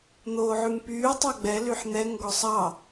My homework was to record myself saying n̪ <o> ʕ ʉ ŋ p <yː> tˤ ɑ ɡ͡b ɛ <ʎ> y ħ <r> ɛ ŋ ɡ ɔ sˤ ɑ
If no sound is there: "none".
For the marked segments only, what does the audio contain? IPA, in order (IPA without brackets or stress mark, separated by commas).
oː, yː, l, n̪